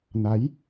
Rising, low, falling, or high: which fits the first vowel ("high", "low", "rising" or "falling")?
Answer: rising